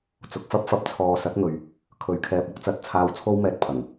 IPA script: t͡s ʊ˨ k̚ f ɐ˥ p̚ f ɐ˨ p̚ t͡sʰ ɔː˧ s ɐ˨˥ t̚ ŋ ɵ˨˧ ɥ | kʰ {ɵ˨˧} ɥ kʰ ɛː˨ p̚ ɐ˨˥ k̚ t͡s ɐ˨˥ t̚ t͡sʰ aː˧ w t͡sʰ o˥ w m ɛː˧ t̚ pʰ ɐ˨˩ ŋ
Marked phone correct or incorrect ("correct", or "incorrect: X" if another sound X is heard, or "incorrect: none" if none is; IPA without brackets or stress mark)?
correct